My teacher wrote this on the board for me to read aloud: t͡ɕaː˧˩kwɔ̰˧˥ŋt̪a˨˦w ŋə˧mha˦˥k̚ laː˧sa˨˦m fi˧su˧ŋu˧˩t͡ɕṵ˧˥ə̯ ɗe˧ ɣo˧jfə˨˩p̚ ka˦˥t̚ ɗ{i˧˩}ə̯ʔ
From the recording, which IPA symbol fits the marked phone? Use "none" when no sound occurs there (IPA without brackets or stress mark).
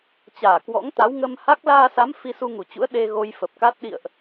ḭ˧˨